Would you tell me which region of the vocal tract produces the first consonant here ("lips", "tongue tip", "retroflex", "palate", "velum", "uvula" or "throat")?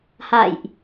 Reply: throat